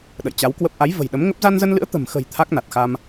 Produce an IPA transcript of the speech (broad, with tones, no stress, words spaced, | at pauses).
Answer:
ɗə̰˧˨jt͡ɕa˨˦wkwə˦˥p̚ ʔa˨˦jvə̤˨˩j ɗə˨˦mŋə˦˥p̚ za˧nzə˧nlɨ̰˧˥ə̯ t̪ə̤˨˩mxə̤˨˩j t̪ʰa˦˥k̚na˨˩t̚xa˧m